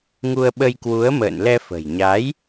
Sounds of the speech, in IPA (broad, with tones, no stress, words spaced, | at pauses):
ŋu˧ə̯ɓə˧jkwu˨˦ə̯ mə̰ː˧˨nlɛ˧fə̤˨˩jɲa˨˦j